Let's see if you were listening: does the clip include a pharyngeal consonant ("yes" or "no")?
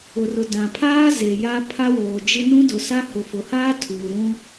no